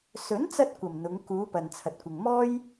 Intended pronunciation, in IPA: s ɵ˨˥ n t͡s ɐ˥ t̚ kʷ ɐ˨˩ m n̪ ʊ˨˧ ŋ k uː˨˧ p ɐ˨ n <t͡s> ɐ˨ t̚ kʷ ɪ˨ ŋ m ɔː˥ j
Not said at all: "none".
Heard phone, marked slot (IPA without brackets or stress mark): t͡sʰ